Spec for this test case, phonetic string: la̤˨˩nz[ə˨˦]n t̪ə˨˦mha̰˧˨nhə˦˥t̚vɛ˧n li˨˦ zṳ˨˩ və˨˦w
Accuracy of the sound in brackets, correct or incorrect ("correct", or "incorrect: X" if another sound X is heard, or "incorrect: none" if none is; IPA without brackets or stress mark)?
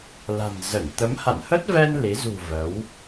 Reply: incorrect: ə˧˩